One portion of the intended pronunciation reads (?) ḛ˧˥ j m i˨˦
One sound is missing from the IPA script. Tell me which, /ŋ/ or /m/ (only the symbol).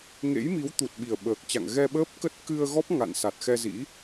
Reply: ŋ